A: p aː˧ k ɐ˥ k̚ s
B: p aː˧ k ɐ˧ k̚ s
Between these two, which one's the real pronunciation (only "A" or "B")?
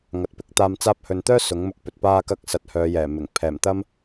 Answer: B